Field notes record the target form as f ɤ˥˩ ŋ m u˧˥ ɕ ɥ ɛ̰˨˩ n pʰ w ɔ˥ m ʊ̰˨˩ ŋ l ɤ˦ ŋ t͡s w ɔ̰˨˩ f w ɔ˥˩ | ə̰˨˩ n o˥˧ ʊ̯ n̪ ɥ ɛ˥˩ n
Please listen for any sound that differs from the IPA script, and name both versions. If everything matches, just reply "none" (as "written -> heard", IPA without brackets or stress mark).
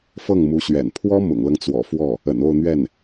none